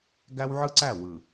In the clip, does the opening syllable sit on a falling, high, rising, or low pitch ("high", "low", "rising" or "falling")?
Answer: high